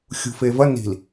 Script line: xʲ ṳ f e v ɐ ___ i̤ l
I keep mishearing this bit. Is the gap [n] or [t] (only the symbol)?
n